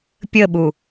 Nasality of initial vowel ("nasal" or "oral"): oral